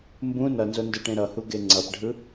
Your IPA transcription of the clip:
m b ũ n ʌ n z o n d ɯ ʈ ẽ ɾ ʌ h u ɡ e ŋ͡ǀ ʌ p ɖʱ ɯ

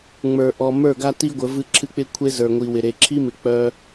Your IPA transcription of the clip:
ŋ͡m ə˞˨ ʔ ɔ˨ m ə˞˦˨ ɡ a˦ t i˦ ɡʷ ə˨˦ v ɨ˦ ǁʰ ɨ˦ k͡p ɪ˦ kʷʰ e˦ z ə˞˨ ŋʷ i˨ w ɪ˨ ɾ e˨ ǁʰ i˦ m ɪ˨ k͡p œ˦

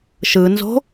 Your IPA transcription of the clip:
ʃ ɯ n z o̤

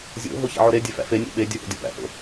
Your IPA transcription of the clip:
zʲ o̰ ɦ o ç æ̰ ʕ o ɾ e dʲ e f æ̰ f e nʲ o̰ ɓ e dʲ u h o̰ dʲ o p æ̰ h o̰

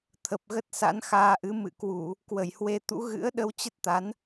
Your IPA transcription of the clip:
t̪ʰ ə˨˩ p̚ ɣ ə˦˥ t̚ s a̰˧˥ n x aː˧ ʔ ɨ˨˦ m ɨ̰˧˨ k w u˧˩˨ | k w ə˧˩ j h w e˧ t̪ ṵ˧˥ ɣ ɨ̰˧˥ ə̯ ɗ ə˧ w t͡ɕ ə˦˥ t̚ t̪ a˨˦ n

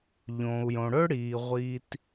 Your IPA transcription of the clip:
ʎ õː˩ u̯ j õ˩ ɽ ɵ˥ ɽ iː˩ ʁʷ iː˩ t

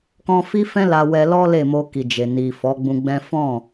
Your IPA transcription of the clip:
k ɔ̃˧ f i˦ f ɛ̃˦ l a˧ w ɛ˧ l ɔ˦ l e˦˨ m o˧ k i˨ d͡ʒ e˨ n i˨ f ɔ˨˦ ɡ͡b ũ˧ ɡ͡b ɛ̃˦ f ɔ̃˦˨

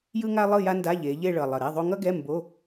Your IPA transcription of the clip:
j ɯ˥ ŋ a˥ lˠ ɯ˥˧ j a˥ n d a˧˥˧ ʎ e˩˧ ʎ e˥˧ ɭ ʌ˨˩ lˠ ʌ˨˩ ɾ ɛ˧˥˧ ðˤ o˥ ŋ ʌ˥ ɡ ɛ˧˥˧ m b o˧˥˧

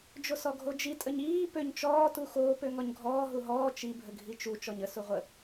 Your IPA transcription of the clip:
d͡ʒ o s ɔ ɡʱ o d͡ʒ i tʼ ə ɲ iː p ø ɲ t͡ʃ ɔː t u x oː p ø ŋ ɔ ɲ ɡʱ ɔː ɦ u ɦ ɔː t͡ʃ i bʱ ə ɡʱ i t͡ʃ u t͡ʃ ɔ ɲ ə s u ʁʷ ə

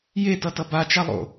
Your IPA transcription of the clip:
j e t ʌ t ʌ b a t͡ʃ a lˠ o̰

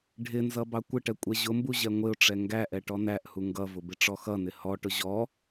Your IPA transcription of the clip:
ɖʱ ɪ n z ʌ b ɑ kʷ ɪ ʈ ɛ kʷʼ ɛ ʑ ʊ m b u ʑ ɛ ŋʷ ɪ ʊ̯ ʈ͡ʂ ɛ ŋ ɡ æ ʔ ɛ ʈ ɔ n æ ʔ h u ŋ ɡ ʌ v ʊ b ɪ ʈ͡ʂ ɔ x ʌ n ɪ h ɔ ʈ ʊ ʑ ɔ

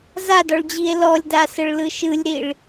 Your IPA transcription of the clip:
z a d ɔ ɭ d͡ʑ i e̯ l ɔ lʲ d a s ə ɭ l ɯ ʃ ɯ lʲ ɾ i ɭ

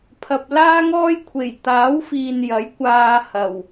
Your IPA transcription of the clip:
pʰ ɐ˨ p̚ l aː˥ ŋ ɔː˥ j kʷʰ e˨˩ j t̪ aː˨˥ w f iː˨ n j ɐ˨˥ j kʷ aː˧ h ɐ˨˩ w

